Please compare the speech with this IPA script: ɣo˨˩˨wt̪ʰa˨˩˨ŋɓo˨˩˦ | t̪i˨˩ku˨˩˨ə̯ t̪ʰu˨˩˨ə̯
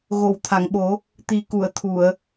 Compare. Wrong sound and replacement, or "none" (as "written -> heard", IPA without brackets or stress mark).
none